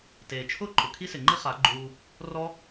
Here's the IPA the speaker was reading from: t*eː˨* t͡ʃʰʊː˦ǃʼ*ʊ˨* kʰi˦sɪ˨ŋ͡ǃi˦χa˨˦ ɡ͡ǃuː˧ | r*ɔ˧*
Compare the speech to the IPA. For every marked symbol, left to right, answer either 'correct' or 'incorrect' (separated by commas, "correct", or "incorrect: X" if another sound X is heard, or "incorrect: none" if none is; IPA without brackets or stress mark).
correct, correct, incorrect: ɔ˦